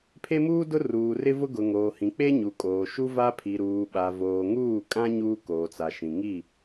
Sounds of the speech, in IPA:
pʰ e˦ m uː˦ d ʊ˦ r uː˨ r ɪ˦ v ʊ˦ ɡ ʊ˨ ŋ oː˨ h ĩ˨ k͡p e˦ ɲ u˨ kʼ oː˨ ʃ u˦ v a˦ pʰ i˨ ɾ uː˨ ɓ a˨ v oː˨ ŋ uː˦˨ kʼ ã˦ ɲ uː˦ k oː˨ t͡s a˨ ʃ ĩ˨ ŋ i˦˨

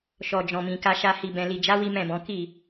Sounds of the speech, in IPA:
ʃ ɔ˨ d͡ʒ ɔ̃˨ m ĩ˨ k a˧ ʃ a˧ h i˨ b ɛ̃˨ l i˨ d͡ʒ a˨˦ w i˦ m ɛ̃˦˨ b ɔ̃˨˦ k i˦˨

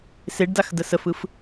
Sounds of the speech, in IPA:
s e ɖ d a x d ə s ə f ɯ f

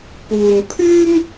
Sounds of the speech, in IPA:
p uː˨ n pʰ yː˥ m

